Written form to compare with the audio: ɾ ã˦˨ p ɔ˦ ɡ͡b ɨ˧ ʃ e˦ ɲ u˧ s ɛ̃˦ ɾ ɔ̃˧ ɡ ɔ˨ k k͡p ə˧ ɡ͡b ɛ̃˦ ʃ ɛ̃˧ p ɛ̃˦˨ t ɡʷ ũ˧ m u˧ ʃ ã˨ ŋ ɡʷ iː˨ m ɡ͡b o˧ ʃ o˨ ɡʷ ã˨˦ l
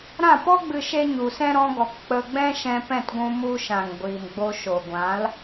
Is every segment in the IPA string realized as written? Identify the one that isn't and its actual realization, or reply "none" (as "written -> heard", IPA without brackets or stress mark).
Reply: none